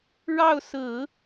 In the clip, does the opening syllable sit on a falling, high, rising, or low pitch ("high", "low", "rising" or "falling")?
falling